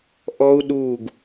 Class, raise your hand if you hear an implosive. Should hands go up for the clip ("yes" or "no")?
yes